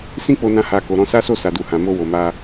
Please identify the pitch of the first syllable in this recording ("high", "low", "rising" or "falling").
high